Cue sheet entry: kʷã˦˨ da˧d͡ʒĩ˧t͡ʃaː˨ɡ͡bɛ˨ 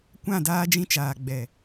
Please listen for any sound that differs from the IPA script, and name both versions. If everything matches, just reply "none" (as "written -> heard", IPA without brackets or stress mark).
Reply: a˧ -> aː˧